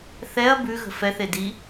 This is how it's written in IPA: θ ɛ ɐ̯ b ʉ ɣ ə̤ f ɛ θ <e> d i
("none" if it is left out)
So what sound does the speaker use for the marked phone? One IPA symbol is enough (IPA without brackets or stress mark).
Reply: e